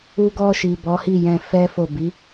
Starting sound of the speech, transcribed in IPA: u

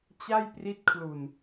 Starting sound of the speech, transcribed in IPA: t͡ɕ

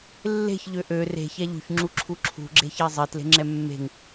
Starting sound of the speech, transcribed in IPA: lː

